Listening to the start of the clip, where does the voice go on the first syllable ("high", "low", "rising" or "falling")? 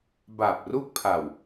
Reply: low